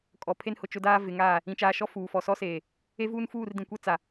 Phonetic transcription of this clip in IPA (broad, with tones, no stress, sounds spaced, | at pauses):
kʼ ɔ˨ pʰ e˦ n h ʊ˨ t͡ʃ ʊ˦ d aː˦ v ɪ˨˦ ŋ aː˦˨ | ĩ˨ t͡ʃ aː˨ ʃ ɔ˦˨ f uː˨ f ɔ˨ s ɔ˦ s eː˨ | e˦ v uː˦ n f uː˦˨ r d ĩ˨ kʷ ɛ˦ t͡s a˨